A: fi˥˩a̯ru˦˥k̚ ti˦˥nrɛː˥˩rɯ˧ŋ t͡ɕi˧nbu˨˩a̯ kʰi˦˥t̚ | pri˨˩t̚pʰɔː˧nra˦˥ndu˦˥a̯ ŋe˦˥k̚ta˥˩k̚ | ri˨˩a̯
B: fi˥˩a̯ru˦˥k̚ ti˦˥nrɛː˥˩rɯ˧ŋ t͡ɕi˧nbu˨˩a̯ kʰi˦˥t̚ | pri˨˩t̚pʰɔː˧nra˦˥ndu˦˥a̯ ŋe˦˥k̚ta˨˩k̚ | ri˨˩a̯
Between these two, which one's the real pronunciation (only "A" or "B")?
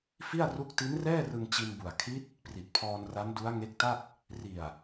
A